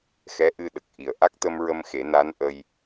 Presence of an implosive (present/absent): present